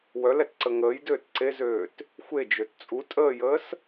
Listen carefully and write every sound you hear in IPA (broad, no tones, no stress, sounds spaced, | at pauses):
w œ l ɛ t ǀ ə ŋ əː j d øː t ǀ e z øː t | xʷ e d͡ʒ ø t t͡sʼ u tʼ əː j əː s